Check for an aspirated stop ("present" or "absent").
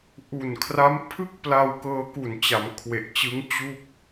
present